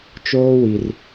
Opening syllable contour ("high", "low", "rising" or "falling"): high